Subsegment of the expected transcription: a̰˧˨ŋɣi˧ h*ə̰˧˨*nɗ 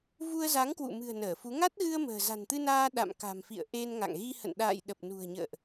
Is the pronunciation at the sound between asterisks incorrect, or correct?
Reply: correct